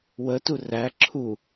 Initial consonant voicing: voiced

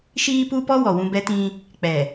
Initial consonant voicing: voiceless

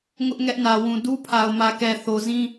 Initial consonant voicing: voiced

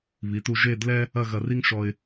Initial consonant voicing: voiced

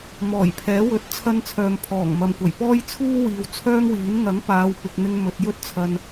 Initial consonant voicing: voiced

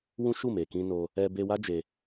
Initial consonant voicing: voiced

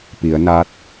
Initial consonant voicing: voiceless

